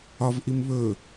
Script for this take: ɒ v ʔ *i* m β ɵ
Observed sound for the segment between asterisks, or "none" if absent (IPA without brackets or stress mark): i